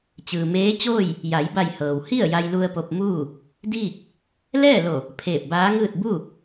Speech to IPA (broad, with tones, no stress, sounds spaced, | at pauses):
t͡ɕ ɯː˩ m eː˧˥ t͡ɕ oː˥˨ j | j a˩˧ j b a˧˩ j h ɤː˩ w h i˥˨ ə̯ j a˧ j l u˧ ə̯ p o˧ p̚ m uː˥˨ | d iː˥˨ k̚ | l ɛː˥˨ l o˧˩ | pʰ eː˧˩ p̚ b aː˧˥ ŋ ɯː˥˨ t̚ b u˥˨